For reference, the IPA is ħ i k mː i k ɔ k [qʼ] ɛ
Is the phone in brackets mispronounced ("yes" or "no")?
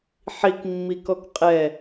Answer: no